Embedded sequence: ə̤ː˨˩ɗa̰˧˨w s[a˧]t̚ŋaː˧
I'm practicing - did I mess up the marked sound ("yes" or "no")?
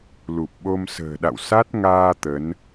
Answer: yes